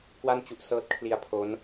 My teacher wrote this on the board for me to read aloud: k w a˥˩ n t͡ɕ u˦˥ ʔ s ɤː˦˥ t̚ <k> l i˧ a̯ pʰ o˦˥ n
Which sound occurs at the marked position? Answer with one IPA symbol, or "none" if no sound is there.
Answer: kʰ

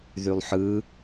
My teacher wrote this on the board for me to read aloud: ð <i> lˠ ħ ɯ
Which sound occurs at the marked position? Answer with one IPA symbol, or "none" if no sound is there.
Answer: y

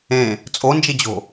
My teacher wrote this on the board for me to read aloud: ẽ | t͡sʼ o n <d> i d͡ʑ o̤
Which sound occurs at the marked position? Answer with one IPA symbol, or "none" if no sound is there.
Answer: d͡ʒ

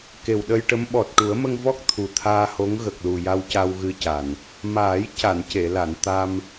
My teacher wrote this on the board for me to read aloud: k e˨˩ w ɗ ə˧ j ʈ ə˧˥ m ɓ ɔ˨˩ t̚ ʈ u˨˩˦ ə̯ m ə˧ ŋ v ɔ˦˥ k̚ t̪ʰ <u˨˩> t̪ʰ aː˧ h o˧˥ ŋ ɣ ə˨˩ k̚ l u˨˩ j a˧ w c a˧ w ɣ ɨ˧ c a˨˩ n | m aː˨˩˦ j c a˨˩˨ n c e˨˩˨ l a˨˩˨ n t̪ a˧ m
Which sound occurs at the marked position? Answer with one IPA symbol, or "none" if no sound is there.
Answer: u˨˩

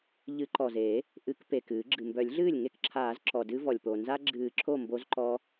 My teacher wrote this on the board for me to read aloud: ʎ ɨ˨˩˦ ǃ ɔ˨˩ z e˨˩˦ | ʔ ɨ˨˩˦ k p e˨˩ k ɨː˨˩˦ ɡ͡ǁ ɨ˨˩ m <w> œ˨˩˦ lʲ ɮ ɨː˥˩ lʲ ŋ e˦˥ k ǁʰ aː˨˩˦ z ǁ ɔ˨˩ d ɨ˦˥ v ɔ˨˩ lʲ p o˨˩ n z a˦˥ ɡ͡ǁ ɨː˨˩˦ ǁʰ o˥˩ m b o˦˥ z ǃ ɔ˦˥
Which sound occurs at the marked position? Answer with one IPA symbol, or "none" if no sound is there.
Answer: b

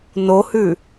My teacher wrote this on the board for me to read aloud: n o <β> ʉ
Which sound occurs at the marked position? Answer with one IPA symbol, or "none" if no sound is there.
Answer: h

